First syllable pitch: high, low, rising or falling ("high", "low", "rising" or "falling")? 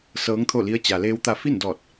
rising